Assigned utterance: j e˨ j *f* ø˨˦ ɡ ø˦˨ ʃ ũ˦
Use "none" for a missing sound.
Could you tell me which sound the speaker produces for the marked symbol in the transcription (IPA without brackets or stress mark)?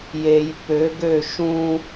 p